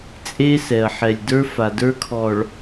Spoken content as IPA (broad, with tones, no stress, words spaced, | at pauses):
t͡sʼe˦sɛ˨ɐ̯ ħɛ˨lʲ də˞˦fa˨də˞˦kʰɔ˨ɭ